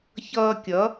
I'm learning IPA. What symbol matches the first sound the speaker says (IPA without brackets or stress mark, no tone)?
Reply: ç